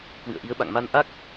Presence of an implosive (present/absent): present